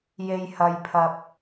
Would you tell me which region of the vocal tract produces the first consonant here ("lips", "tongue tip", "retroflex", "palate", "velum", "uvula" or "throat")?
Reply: palate